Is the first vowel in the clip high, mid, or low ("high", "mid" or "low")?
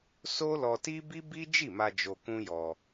mid